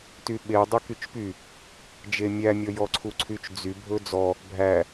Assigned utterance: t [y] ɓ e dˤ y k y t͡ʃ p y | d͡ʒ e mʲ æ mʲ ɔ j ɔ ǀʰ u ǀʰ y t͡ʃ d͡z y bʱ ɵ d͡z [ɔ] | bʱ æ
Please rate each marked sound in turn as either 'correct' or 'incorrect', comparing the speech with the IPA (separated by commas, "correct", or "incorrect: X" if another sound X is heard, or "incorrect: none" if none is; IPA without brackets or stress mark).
correct, correct